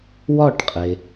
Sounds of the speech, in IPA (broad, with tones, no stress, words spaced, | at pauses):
wɒː˥˩ʈqʼe˩